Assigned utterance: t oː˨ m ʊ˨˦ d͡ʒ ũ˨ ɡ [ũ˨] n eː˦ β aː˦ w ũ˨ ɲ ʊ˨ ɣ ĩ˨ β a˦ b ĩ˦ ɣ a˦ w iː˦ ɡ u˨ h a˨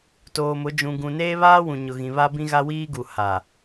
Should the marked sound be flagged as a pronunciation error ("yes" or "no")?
no